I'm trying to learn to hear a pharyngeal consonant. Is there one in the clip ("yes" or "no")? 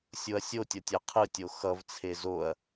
no